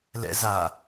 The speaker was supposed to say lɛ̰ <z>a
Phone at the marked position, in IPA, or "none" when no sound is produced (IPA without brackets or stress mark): z